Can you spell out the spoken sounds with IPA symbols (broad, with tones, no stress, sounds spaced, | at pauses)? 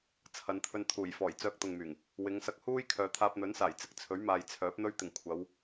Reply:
t͡sʰ ɐ˨˧ n t̪ʰ ɵ˧ n t̪ʰ uː˨˩ j f ɔː˨˩ j t͡s œː˧ k̚ t̪ ʊ˨ ŋ m yː˨˩ ŋ | w ɪ˨˧ ŋ s ɐ˧ k̚ h uː˥ j kʰ œː˨˧ t̪ʰ aː˧ p̚ n̪ ɵ˨˥ n s aː˨˩ j t͡s ɪ˨ k̚ t͡sʰ ɵ˨˥ ɥ m aː˨ j t͡sʰ œː˨˥ p̚ n̪ ɵ˧ ɥ t̪ ɪ˨˩ ŋ kʷʰ ɐ˨˧ w